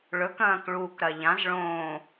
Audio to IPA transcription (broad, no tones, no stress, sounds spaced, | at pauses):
ɭ ɵ k ɐ̃ː k ɭ uː k ɾ ɐ ʎ ã z ɭ õː